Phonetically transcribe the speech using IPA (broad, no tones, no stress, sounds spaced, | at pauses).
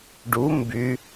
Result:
ɖ u m b y